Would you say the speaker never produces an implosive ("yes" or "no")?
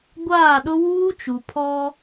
no